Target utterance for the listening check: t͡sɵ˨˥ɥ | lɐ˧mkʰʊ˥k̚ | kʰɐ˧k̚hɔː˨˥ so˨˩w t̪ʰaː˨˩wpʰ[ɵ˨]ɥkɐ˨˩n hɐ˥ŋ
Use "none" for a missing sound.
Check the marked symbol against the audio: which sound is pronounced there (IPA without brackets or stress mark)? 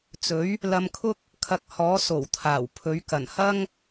ɵ˨˥